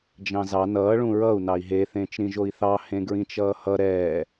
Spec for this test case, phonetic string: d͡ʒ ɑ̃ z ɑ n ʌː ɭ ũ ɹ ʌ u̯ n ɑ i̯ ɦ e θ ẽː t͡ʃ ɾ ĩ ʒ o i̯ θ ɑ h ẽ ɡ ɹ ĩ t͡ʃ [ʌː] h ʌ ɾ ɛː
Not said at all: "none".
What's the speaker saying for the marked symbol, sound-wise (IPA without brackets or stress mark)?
ʌː